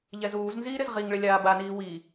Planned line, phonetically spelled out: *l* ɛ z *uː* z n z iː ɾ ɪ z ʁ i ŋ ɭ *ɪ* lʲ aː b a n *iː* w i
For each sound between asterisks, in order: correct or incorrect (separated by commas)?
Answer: incorrect, correct, correct, correct